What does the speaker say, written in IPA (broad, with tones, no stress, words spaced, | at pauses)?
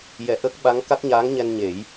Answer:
jɛ˨˩˨ ʔə˦˥k̚ɓa˧˥ŋ ka˦˥k̚ɲaː˧˥ŋɲɛ˧n ɲe˨˩˦j